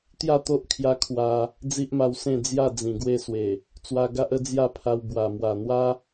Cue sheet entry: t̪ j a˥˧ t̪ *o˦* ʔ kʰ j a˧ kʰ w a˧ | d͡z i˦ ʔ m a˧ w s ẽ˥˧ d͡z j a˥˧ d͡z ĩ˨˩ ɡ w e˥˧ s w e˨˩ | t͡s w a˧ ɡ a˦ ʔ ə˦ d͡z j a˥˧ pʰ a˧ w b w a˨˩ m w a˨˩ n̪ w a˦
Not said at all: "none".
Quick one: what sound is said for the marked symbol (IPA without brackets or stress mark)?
o˦